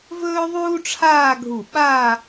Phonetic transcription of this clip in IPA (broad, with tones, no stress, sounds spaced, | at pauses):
v ɵː˥ ðˤ uː˥ ʈ͡ʂʰ aː˥˧ ɡʱ u˧˩ ɓ a˥˧